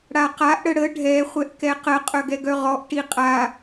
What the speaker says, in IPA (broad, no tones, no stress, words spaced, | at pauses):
ɽaqaʔ ɽəɽə ɖʱɛ χʷɛʔkɛqə qʼœɡɛɡœʁɔʔ ʈiqʼa